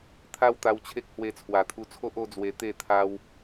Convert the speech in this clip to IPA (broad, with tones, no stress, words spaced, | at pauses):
t̪ʰa˦wt̪a˧w t͡ɕʰe˦k̚ hwe˧t͡sʰwa˨˩t̪ʰu˧t͡sʰo˦ʔ o˦d͡zwe˧ t̪e˥˧ t̪ʰa˦w